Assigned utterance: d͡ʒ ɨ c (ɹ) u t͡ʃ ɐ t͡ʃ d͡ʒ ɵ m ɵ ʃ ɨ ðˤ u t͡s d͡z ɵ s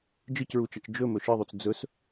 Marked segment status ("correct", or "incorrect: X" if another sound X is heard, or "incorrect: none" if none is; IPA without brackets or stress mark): correct